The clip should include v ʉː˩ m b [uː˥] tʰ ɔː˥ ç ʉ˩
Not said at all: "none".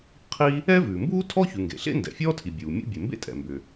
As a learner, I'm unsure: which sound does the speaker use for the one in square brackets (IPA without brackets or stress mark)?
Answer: uː˥